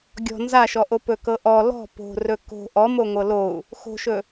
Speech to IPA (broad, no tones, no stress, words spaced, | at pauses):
ɡʲɔ̤ nzaʃɔʔo pɵkɤʔɔ lɔ̤ po̤rɵ ko̤ ʔɔmo ŋʷɤlou̯ | xo̤ʃɵ